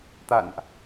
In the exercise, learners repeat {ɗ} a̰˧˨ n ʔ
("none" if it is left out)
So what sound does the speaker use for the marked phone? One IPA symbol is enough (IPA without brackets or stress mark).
t̪